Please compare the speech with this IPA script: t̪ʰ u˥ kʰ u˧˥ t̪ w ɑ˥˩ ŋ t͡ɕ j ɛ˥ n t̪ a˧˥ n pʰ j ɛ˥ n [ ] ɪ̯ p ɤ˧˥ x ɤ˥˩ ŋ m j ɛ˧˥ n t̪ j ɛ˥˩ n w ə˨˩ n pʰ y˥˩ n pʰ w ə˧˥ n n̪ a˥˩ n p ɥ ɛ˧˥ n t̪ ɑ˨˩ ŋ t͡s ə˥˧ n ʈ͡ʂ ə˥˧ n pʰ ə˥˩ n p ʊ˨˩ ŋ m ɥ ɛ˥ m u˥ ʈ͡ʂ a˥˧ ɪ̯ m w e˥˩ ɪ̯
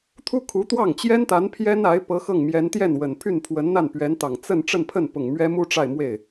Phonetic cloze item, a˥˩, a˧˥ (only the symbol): a˧˥